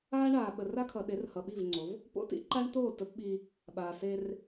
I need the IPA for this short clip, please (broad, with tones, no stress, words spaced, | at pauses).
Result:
aː˦ɳaː˨ ɓə˨ra˦kʰʌ˨ɗe˨˦r hʌ˨ɓi˦˨vŋ͡ǀo˨˦v | po̰˦tḭ˦ǃa˦ɳt̪oː˦˨ tə˦pɓi˦ | ɓaː˨seː˦r